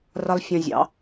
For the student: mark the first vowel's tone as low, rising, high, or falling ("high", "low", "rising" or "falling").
high